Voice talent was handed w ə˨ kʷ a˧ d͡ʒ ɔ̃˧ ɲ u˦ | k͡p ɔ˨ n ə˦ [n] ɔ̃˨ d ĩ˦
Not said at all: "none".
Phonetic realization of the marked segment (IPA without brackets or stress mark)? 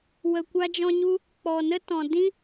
t